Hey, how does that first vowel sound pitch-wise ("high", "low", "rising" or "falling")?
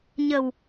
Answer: low